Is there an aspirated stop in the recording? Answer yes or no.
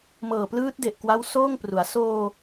no